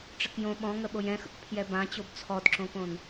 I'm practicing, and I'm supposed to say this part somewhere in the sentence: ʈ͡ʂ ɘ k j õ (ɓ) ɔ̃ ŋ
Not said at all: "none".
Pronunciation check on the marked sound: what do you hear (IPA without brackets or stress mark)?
ɓ